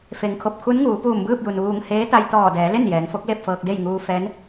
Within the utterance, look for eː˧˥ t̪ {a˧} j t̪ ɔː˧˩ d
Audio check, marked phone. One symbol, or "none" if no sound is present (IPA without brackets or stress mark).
a˧